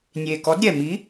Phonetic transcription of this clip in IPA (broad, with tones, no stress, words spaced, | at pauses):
nʲe˨˩kɔ˨˥dɾʲɛ˨˩ mi˨˥